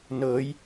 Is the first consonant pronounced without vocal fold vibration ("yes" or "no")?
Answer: no